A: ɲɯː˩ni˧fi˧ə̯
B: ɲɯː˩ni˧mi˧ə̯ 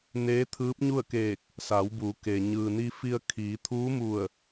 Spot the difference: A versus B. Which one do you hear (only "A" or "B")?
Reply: A